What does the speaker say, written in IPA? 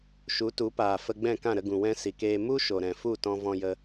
ʃ u˨˦ t u˨˦ p aː˨ f ə˧ ɡ͡b ɛ̃˦˨ k ã˦˨ ɾ ə˧ ɡ ũ˨ w ɛ̃˦ s i˨ k eː˧ m u˦ ʃ o˨ ɾ ɛ̃˨ f u˦˨ t ɔ̃˧ v ɔ̃˧ j ə˧

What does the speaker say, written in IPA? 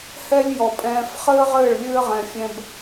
h ɛ˦ lʲ j ɔ˨ pʼ ɛ̃ː˧ f χ ɘː˦ ʁ ɘː˦˨ ɭ lʲ ɘː˦ ʁ ɛ̃˧ fʲ ɛ̃˦ b

